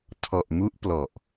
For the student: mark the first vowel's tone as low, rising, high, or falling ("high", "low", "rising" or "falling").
low